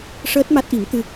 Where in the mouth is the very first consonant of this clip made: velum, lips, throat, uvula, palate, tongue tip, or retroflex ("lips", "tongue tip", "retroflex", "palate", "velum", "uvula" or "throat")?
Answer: retroflex